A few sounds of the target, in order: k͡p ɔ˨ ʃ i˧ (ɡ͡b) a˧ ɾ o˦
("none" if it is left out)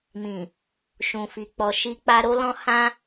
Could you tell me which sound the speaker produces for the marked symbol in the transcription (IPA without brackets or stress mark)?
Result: k͡p